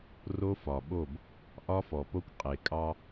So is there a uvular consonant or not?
yes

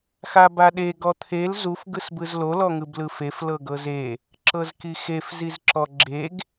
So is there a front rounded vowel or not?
no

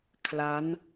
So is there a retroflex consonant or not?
no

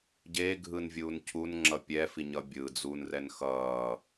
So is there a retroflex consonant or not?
no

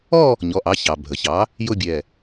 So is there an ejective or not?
no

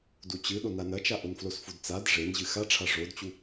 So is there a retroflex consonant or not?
yes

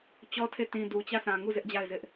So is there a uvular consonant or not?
no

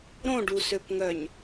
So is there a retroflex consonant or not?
yes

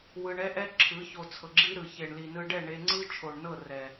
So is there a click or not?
yes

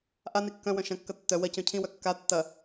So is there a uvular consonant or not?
no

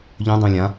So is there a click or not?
no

